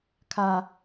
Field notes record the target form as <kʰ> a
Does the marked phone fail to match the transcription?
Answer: no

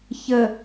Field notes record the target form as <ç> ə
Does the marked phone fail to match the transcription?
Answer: no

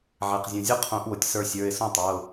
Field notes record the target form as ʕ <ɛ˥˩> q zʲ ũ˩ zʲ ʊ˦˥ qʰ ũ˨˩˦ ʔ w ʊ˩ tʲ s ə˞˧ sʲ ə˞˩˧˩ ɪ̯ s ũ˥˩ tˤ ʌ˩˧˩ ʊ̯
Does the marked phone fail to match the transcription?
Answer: yes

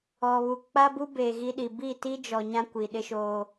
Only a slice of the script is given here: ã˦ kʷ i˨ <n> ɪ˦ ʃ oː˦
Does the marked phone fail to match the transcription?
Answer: yes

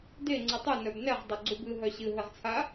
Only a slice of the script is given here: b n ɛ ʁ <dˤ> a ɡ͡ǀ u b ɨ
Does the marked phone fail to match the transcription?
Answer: no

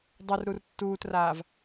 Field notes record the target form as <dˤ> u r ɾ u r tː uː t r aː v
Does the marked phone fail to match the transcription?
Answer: no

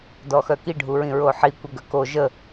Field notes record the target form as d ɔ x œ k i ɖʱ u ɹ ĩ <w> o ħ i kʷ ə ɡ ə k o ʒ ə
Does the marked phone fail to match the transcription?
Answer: yes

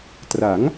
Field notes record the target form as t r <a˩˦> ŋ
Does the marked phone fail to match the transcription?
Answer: no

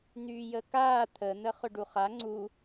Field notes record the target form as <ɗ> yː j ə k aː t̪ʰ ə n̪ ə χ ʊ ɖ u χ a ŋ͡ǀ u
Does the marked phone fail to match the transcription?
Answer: yes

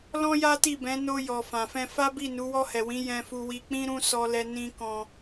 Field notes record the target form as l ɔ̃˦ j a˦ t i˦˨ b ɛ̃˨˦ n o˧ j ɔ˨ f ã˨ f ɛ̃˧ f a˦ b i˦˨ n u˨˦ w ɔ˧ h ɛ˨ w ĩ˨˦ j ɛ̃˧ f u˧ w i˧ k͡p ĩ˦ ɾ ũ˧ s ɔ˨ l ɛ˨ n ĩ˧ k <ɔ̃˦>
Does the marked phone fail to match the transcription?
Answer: yes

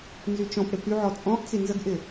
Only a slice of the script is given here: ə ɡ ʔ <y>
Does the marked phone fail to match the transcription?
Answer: yes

